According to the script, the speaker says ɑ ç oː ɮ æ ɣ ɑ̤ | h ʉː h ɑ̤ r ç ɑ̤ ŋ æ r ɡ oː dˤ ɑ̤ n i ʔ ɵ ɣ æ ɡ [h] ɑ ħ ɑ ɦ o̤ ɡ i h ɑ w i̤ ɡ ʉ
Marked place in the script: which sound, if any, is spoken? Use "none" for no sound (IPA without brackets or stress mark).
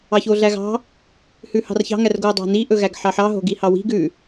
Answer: ħ